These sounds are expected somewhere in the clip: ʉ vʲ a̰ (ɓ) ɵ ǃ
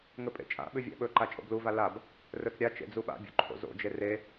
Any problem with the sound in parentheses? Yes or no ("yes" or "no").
no